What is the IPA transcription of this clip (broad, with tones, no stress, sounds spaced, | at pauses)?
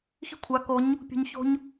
x i̤˦ kʷʰ a˨˦ k o˨˦ ɲ | pʲ ṳ˧ ɲ ç o̤˧ ɲ